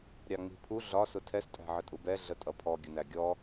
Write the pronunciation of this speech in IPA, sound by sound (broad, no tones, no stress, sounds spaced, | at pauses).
ɾʲ ɑ ŋ͡m i̤ pʰ u ɮ ɒ s ʊ tʰ ɛ s tʼ æ̤ ʕ ə tʼ u b ɛ ɮ ə tʼ ʌ pʰ ɔ ɡʲ ə n æ ɡʲ ɔ